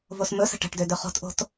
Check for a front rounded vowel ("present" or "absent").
present